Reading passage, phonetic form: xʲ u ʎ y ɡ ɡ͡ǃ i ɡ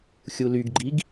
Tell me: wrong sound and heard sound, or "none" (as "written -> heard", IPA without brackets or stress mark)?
ʎ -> l